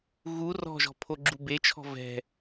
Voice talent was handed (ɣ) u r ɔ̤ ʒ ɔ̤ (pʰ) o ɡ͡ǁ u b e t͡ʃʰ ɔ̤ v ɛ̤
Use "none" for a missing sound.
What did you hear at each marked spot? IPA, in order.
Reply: ɣ, pʰ

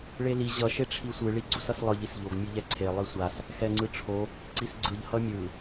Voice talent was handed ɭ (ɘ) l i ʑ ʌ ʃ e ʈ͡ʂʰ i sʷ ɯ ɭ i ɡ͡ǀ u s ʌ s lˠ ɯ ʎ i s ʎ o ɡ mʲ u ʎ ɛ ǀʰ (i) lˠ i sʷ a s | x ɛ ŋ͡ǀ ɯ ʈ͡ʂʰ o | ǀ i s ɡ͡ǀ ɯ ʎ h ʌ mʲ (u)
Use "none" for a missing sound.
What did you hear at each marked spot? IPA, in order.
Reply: e, e, ɯ

